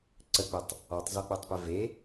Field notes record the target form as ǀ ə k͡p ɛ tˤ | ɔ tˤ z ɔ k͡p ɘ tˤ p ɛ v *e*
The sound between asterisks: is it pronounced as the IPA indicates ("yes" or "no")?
yes